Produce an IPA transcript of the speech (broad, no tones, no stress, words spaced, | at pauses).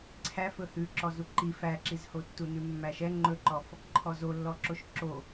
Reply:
ǀʰæfɵ hʉ ǁɔzuǃi fæǁizhotːu nʉmːæʃɛ ŋ͡ǃɵǃɔf | ǃʰɔzolːɔǁoʃ ǁo